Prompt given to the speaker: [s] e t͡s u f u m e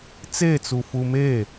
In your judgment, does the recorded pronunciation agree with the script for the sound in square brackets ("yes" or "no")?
no